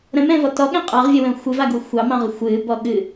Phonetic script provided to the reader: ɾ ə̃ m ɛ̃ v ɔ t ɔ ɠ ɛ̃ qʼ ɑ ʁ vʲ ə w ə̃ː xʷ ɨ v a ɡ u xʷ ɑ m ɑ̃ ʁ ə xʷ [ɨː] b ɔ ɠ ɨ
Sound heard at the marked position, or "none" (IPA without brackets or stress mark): ɨː